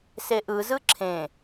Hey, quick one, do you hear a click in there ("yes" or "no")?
yes